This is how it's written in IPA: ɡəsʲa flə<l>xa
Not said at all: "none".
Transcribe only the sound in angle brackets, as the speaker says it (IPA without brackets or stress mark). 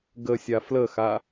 none